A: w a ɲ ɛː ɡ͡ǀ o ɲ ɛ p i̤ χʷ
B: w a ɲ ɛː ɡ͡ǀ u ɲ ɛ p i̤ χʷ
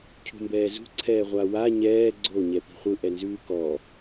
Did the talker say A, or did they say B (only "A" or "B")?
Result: A